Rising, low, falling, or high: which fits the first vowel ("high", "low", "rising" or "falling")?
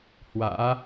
rising